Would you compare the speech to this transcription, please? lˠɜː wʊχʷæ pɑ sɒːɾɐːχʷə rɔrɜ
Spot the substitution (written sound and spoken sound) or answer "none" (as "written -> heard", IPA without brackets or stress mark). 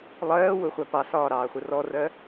ɐː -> ɑː